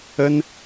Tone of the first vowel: high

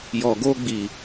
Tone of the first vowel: low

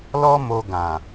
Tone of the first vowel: high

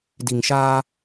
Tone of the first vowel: low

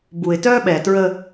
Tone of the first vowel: low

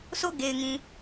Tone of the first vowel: falling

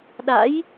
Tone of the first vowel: rising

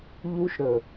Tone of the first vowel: high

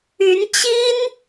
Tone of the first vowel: rising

